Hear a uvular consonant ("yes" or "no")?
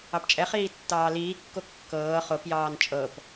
yes